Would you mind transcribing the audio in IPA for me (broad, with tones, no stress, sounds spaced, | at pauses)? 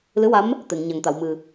l ɨ˧˥ w a˧˥ m | t̪ e˨˩˨ ŋ ɲ a˨˩ ŋ t̪ a˨˩˨ w m ɨ˨˩